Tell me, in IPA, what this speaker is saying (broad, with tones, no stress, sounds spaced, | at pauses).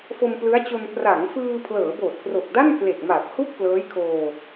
f o˧ m p l ɯ˦˥ a̯ t͡ɕ o˧ n p r a˩˦ ŋ f ɯː˧ pʰ l ɤː˩˦ b oː˨˩ t̚ k r o˨˩ k̚ d a˥˩ n k l e˨˩ k̚ m aː˨˩ p̚ h u˥˩ k̚ p l ɤː˦˥ j kʰ oː˧